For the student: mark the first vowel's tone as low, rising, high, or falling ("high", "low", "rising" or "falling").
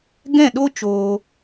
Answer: falling